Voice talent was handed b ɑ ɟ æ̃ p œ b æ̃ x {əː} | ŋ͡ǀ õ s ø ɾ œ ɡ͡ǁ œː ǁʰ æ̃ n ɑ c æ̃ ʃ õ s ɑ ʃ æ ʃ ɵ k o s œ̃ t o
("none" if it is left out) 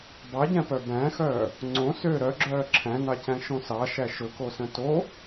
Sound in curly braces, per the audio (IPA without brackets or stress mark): œː